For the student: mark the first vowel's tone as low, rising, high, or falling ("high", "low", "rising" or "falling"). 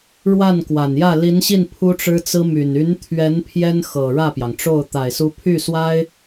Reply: falling